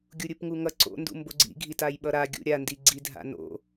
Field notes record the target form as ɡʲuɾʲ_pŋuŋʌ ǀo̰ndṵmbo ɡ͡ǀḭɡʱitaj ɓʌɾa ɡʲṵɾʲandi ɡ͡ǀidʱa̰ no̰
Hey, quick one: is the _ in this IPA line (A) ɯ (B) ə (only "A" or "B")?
A